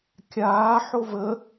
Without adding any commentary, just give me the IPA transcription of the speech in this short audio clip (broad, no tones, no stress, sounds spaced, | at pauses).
kʲ aː ħ o v ə